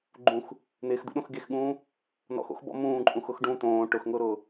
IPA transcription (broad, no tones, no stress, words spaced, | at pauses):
ɡ͡ǃũx | n̪ɪːxd̪ṵɗõx ɡexɠũː | nɔ̰xo̰xbɔ̰ mũːǃʼũxʊx ɖũ t̪õː ʈʊxŋʊːɾʊː